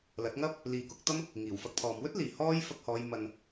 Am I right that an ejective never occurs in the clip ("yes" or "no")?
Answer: yes